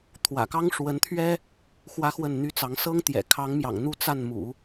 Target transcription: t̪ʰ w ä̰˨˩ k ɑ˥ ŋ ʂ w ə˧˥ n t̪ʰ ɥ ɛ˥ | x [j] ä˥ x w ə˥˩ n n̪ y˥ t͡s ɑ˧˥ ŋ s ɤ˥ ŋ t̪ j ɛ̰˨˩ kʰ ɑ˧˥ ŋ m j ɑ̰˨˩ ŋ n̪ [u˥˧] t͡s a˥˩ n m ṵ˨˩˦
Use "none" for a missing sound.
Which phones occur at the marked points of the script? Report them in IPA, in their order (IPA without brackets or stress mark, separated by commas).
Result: w, u˥˧